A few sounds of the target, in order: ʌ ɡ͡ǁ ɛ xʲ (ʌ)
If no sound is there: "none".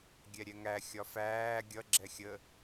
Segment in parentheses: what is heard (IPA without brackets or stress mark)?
ə